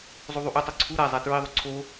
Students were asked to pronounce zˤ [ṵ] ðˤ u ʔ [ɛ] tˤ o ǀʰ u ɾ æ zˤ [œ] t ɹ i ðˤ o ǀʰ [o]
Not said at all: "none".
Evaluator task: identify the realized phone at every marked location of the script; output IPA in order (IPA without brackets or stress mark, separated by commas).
u, e, æ, o